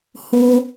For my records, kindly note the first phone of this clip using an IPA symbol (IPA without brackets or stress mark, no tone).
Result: h